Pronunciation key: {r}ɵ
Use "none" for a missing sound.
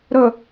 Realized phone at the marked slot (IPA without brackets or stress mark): ɾ